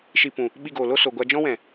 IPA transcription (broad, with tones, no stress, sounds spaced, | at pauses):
ʃ i˧ p ũ˨ | ɓ i˧ ɡ oː˨ l o˦ s o˨ ɡʷ a˧ d͡ʒ ɔ̃˦ w ɛ̃˨